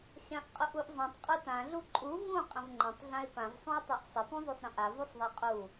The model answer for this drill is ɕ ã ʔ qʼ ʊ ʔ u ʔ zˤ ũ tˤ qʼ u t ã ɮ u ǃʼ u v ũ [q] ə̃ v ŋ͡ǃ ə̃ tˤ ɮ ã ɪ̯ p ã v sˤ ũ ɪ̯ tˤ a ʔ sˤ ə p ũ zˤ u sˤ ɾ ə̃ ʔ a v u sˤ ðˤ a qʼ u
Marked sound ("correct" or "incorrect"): incorrect